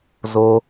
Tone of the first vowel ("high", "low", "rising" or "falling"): high